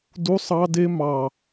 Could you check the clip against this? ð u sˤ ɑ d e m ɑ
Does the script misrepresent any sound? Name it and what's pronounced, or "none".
ð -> d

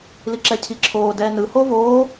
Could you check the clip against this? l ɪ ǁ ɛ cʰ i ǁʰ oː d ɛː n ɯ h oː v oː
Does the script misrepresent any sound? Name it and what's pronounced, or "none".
ɪ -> i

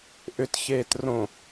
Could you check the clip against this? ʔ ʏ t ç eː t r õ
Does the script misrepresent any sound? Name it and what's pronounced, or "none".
none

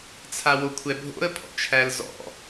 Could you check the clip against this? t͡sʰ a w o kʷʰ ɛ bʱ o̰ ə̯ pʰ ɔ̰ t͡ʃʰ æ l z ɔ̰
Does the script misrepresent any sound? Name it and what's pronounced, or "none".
none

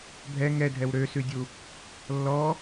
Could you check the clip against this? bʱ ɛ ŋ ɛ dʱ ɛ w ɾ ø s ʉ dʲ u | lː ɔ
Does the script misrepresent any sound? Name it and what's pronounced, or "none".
none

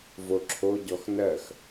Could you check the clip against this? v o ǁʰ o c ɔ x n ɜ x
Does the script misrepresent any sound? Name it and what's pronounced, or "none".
c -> ɟ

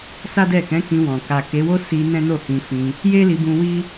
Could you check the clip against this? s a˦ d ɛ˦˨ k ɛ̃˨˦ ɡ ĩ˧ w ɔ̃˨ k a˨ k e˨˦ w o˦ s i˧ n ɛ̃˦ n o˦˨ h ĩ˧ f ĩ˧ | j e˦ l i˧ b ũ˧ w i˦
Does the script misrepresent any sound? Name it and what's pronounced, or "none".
ɡ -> k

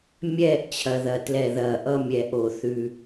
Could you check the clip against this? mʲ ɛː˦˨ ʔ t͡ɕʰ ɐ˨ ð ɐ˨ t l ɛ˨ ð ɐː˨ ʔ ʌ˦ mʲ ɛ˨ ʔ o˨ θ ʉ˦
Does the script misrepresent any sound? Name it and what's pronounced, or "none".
none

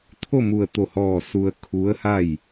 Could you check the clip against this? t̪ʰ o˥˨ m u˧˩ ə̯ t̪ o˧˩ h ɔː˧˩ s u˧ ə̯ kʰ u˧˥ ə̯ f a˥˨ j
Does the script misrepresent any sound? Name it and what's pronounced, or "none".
f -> h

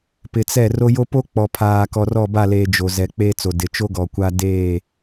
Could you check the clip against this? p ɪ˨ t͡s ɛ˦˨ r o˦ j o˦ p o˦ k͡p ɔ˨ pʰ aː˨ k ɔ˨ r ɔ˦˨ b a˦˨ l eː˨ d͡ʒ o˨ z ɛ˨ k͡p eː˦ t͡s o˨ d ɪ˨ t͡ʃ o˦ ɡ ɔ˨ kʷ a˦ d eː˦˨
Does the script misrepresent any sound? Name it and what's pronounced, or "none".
none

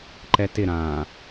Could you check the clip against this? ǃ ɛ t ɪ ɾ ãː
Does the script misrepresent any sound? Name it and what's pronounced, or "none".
none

